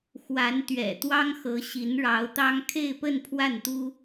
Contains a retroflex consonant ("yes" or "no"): yes